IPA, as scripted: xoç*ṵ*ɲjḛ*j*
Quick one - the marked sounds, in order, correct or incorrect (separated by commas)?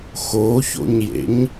incorrect, incorrect